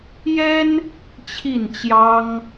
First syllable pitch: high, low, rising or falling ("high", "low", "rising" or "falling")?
high